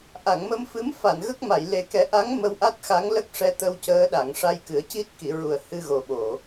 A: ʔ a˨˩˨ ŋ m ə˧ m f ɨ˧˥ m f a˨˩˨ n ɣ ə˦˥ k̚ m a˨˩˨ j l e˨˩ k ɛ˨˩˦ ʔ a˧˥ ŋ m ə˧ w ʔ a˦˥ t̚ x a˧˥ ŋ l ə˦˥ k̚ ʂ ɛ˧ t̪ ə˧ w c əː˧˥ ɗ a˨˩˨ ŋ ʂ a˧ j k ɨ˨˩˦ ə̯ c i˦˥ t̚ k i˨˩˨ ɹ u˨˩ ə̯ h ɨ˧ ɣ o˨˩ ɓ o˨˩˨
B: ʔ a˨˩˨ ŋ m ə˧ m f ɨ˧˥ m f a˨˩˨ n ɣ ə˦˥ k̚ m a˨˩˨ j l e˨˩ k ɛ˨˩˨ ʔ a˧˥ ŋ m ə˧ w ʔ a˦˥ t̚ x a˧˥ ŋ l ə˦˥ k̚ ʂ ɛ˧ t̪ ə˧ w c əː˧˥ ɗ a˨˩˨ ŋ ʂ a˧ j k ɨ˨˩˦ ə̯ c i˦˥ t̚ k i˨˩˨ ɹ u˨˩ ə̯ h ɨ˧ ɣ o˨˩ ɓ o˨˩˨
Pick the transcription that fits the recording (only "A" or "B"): A